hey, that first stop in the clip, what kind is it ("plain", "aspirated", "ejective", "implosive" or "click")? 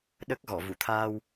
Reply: implosive